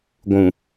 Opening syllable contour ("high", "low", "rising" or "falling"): low